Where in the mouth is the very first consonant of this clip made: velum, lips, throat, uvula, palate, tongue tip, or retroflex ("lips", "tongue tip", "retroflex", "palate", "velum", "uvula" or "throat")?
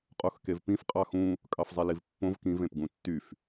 uvula